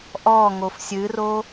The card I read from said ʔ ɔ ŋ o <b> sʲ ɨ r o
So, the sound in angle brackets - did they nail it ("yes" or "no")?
no